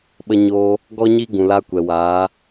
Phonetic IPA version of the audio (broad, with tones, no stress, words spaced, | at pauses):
ɓə˧ɲoː˧ | ɡɔ˦ɲi˦ɡũ˨la˧ kʷɛ˨waː˨˦